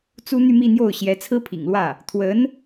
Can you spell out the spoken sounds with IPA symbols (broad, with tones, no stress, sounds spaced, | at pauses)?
t͡s u˥ n̪ y˥˧ m i˥˧ n̪ j o˥˩ ʊ̯ ɕ j ɛ˧˥ t͡sʰ ɹ̩˥ pʰ ḭ˨˩ ŋ l w ä˥˩ | t̪ʰ w ə˧˥ n